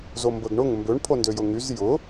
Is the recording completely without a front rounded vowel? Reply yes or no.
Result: no